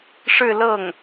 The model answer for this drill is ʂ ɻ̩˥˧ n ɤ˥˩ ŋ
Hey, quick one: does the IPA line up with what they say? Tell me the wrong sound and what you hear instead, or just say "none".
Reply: n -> l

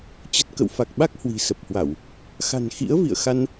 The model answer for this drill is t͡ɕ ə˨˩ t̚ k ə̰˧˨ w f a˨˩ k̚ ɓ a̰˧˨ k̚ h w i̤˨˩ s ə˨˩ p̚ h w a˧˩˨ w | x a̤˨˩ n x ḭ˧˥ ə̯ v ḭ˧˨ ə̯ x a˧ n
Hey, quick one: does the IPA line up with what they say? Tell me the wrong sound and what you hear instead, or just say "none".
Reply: a̰˧˨ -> a˦˥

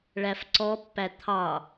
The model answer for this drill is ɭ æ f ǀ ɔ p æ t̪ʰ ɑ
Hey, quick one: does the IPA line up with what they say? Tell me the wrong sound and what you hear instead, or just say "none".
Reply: p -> pː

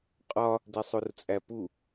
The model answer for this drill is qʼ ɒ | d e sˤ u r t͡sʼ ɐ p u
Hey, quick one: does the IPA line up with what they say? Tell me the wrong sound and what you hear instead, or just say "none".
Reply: ɐ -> æ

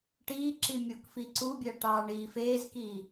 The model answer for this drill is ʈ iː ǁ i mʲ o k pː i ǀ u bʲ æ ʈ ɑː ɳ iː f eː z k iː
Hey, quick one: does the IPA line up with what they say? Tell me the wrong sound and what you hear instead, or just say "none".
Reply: pː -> f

